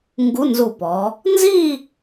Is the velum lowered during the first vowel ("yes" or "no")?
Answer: no